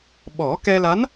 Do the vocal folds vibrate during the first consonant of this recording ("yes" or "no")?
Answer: yes